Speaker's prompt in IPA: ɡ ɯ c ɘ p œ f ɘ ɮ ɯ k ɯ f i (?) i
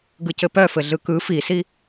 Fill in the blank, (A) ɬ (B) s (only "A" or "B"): B